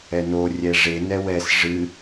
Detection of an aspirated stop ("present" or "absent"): absent